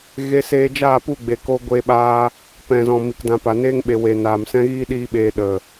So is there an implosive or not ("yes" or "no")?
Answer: yes